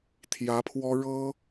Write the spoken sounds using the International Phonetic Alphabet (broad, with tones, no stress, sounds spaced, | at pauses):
t̪ʰ j ä˧˥ pʰ w ɔ˥ ɻ ɤ˥